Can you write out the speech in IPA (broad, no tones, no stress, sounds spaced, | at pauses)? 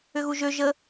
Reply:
ʏ ɣ u ʒ ø ʒ ə